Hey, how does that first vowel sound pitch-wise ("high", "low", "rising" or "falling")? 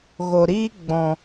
low